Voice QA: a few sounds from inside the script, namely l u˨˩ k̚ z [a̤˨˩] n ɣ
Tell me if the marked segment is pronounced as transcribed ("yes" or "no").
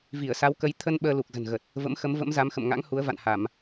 no